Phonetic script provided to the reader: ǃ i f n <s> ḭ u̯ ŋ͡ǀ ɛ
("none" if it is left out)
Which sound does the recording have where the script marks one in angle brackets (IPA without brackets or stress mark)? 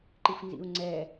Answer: z